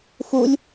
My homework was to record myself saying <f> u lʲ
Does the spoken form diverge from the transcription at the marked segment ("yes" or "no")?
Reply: no